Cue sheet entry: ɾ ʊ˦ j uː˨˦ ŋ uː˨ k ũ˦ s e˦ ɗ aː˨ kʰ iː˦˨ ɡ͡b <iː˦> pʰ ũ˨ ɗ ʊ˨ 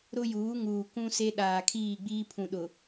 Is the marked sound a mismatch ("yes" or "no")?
no